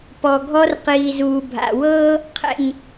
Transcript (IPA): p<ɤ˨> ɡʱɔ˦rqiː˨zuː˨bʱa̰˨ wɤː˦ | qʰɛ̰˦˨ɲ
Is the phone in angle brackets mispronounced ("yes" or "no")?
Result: yes